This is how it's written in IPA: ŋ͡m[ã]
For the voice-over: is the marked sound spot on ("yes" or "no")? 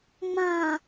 yes